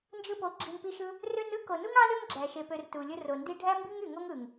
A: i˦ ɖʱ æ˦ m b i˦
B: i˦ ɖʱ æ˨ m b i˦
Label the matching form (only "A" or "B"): A